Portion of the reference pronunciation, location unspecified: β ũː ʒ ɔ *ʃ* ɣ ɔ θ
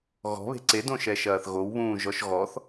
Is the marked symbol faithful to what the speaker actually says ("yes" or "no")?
yes